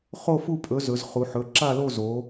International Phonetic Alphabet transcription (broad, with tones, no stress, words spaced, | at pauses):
χo˥˨fu˥˨pʼɵ˨˥zɵ˩˧z χu˩˧ħɵ˩˧˩ǁa˥˨lo˥˨ zo˨˥